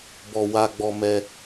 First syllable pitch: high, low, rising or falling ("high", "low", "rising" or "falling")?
low